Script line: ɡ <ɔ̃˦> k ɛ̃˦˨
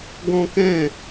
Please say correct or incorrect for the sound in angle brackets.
correct